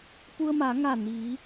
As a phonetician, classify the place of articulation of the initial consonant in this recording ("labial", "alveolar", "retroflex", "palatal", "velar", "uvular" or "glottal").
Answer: labial